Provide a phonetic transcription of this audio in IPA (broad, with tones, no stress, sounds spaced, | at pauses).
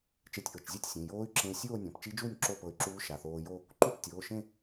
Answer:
t͡ʃ e˧ tʲ ʔ ɤ˩˧˩ t͡ʃ zʲ ɛ˥˧ tʲ sʲ ẽ˩˧˩ j oː˦˥ y̯ ǁ ẽ˧ i̯ sʲ oː˥˧ nʲ ɔ̃˩˧˩ p t͡ʃ i˦˥ d͡ʒ uː˥˧ nʲ ǁ o˥˧ p ɤ˧ y̯ ǁ uː˦˥ ʃ a˩˧˩ θ oː˧ j o˥˧ | ǃ u˥˧ p tʲ oː˩˧˩ ʃ ẽ˥˧